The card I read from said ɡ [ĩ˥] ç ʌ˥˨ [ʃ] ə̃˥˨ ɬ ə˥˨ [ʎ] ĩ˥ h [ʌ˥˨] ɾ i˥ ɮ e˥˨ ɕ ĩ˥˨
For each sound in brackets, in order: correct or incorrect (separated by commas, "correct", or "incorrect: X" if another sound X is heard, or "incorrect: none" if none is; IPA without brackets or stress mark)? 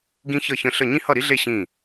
correct, incorrect: ç, incorrect: ɲ, correct